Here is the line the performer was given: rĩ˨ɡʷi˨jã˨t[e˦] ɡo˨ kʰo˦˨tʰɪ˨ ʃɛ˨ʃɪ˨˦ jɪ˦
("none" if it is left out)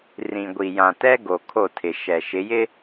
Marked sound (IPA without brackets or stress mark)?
ɛ˦